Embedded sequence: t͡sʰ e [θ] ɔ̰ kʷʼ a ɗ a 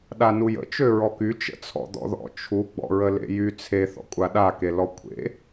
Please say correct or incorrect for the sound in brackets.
correct